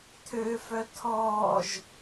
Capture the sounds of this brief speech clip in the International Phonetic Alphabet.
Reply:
tʰ øː f œ tʰ ɔː ʒ

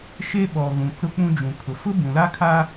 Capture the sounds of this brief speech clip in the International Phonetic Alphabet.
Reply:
ʃ e˦ ɓ ɔ˨ ɣ ũ˨ t͡s ʊ˦ k͡p ũ˦ d͡ʒ ũ˨ kʰ ʊ˨ f ʊ˦ b ũ˨ l a˦ kʰ a˦

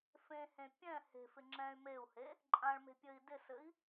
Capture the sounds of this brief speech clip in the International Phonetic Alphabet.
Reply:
f ẽ h ẽ pʲ ɛ̃ h e̤ f ɪ ŋ͡ǁ ɛ̃ y̯ m e u̯ h e | ǃʼ ã ɭ m e̤ pʲ ɘ i̯ d ɪ s ɘ i̯

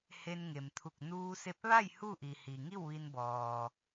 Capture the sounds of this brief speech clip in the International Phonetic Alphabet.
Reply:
h e˧ n ŋ e˩ m t̪ʰ u˧˩ k̚ n uː˧ s e˧ p̚ ʋ a˥˨ j h u˥˨ ʔ i˩ h i˩ ŋ i˥˨ w ʋ i˧ n b ɔː˩

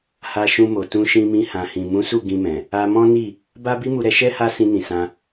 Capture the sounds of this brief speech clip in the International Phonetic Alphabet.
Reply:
h a˧ ʃ ũ˧ m o˨ t ũ˧ ʃ ĩ˧ m ĩ˧ h ã˨ h ĩ˨ m ũ˨˦ s u˦˨ ɡ ĩ˧ m ɛ̃˨ | a˧ m ɔ̃˦ n i˦˨ | b a˦ b i˦ m u˧ ɾ ɛ˧ ʃ ɛ˦ h a˦ s ĩ˧ n ĩ˨ s ã˧

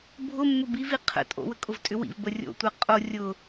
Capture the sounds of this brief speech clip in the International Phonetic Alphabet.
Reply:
bʱ ʊ mː ʊ b i v i qʰ ə̰ tʼ o̰ w ə kʼ ʊ v tʼ ʏ w ḭ v b ə rʲ o̰ tʷ ɛ qʼ o rʲ ʊ

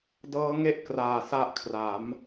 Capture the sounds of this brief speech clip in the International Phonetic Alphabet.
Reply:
d ɤː˦˥ ŋ e˥˩ ʔ k r aː˨˩ s a˦˥ ʔ kʰ r a˩˦ m

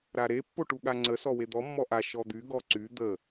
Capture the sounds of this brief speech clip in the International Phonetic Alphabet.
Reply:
ɾ a ɾ e pː o ʈ u ɠ a ŋ͡ǀ ə s ɔ w e d̪ ɔ mː ɔ ʔ a ʃ ɔ d̪ y ɡ ɔ ǀ y d̪ ə

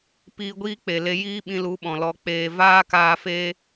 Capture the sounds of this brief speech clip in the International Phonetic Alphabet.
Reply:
p iː˧ ɡʷ iː˦ k͡p e˨ l e˧ j iː˦ ɓ ĩ˧ l u˨˦ ɓ ɔ̃˨ l ɔ˧ k͡p eː˧ v aː˦ k aː˧ f eː˦

